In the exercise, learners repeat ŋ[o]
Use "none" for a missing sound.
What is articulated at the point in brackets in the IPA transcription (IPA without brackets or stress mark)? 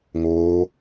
oː